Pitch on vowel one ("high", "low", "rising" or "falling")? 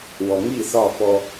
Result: low